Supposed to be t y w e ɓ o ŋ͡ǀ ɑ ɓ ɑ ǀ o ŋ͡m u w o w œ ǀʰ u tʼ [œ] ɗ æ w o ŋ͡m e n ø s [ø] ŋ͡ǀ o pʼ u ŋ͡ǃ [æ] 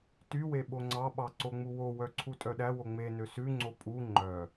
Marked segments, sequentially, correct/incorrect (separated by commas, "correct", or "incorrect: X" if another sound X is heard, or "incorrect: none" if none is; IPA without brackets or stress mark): correct, incorrect: ʉ, incorrect: œ